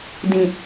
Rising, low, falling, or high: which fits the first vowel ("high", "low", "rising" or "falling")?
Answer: low